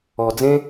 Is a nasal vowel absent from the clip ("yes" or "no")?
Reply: no